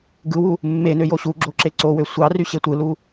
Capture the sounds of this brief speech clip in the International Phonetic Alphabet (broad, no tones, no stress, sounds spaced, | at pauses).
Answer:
ɡ ɯ w u | mː e n ø j o ɕ u ɡ͡ǁ o ǁ e ǀ o w ø sʷ ɑ r y ɕ e tʷ ɯ l u